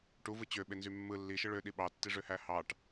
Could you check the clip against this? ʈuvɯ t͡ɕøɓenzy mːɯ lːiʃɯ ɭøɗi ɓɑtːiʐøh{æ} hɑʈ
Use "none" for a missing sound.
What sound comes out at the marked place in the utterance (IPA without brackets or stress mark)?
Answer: æ